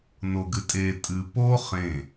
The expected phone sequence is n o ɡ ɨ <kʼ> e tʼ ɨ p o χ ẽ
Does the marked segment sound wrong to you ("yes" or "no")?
yes